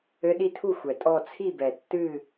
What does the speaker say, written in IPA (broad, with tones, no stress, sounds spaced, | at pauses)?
ɘ˧˥ ɗ i˧˥ tʰ u˥˩ xʷ ɛ˩ tʼ ɔ˥˩ t͡sʰ i˥˩ b ɛ˩ tː ɨ˥˩